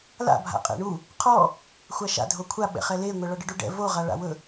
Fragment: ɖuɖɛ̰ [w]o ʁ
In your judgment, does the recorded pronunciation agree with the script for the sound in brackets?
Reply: no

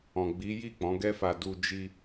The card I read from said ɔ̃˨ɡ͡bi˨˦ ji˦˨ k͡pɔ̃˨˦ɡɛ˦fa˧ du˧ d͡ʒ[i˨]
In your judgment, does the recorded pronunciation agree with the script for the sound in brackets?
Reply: no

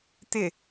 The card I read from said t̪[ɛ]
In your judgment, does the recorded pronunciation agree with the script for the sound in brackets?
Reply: no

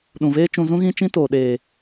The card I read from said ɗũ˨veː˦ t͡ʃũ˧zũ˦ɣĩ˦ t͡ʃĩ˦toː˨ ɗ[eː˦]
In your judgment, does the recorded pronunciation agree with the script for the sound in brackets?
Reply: no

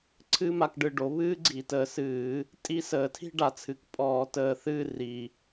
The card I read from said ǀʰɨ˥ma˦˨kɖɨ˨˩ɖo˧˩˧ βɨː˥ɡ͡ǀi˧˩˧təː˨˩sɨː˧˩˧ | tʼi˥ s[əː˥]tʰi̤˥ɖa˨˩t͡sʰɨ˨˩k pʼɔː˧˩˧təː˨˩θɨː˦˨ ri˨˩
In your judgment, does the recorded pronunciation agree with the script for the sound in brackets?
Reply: no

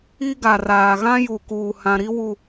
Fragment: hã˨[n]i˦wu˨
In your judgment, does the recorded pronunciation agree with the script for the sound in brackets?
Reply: no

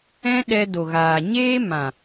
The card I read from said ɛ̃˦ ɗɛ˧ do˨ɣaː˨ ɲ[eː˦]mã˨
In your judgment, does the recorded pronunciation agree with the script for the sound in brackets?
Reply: yes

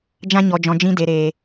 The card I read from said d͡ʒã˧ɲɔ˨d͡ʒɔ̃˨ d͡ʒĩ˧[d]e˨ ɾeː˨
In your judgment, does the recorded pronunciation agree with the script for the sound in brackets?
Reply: yes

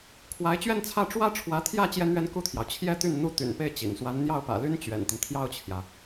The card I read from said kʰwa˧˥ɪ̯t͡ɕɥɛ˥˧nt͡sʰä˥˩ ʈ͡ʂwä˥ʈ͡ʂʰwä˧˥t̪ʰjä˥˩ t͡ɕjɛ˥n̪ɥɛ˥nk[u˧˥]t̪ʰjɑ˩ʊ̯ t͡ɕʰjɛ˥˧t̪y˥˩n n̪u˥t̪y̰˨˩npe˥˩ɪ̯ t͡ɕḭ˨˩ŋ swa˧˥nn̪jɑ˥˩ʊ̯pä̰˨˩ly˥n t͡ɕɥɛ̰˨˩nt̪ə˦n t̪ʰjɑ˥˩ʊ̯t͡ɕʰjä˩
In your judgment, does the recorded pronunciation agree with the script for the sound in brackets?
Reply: no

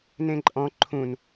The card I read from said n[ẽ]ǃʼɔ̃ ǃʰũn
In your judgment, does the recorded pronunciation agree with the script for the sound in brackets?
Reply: yes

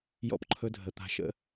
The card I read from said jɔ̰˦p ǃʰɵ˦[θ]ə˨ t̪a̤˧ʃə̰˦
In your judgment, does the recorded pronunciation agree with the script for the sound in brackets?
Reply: no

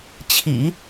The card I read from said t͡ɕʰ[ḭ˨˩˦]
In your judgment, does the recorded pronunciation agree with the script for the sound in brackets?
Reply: yes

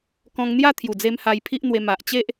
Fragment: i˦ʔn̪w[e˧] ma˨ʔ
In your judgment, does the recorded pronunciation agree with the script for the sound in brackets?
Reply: yes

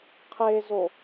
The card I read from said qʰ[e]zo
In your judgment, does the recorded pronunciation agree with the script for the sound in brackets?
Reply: yes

